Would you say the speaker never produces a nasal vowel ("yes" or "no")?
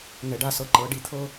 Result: yes